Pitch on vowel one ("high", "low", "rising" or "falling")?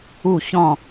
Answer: falling